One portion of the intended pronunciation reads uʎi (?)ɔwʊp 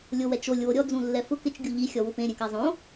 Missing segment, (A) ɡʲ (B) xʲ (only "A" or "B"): B